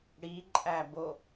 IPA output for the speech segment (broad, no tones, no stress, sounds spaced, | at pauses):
ɽ i ǃʼ æ b o